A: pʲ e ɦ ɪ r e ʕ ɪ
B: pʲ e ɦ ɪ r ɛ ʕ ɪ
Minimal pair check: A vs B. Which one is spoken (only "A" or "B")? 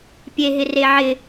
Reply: A